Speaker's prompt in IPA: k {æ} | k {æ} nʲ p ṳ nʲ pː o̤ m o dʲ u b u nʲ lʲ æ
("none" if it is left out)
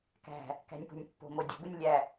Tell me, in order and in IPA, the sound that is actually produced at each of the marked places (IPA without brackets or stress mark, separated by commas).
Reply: æ̤, æ̤